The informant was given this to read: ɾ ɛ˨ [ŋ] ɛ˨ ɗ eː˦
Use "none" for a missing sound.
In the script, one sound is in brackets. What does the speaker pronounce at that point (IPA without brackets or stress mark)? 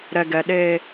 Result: ɡ